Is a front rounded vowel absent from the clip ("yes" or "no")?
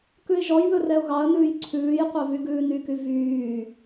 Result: no